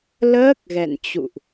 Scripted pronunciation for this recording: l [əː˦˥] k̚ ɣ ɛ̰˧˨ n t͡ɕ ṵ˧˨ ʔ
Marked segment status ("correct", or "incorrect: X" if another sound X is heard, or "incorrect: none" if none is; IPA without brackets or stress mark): correct